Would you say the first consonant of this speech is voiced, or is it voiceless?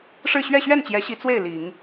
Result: voiceless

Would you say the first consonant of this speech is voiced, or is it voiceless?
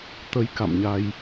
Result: voiceless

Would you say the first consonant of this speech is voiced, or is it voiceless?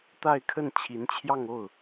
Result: voiceless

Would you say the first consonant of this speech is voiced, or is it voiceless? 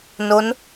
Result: voiced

